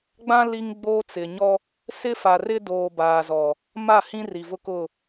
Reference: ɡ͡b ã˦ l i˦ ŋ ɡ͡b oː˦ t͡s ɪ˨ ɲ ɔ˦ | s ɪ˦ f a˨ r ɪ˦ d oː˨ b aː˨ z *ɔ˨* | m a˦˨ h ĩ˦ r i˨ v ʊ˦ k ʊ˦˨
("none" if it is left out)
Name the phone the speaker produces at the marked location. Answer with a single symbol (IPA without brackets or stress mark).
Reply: ɔ˨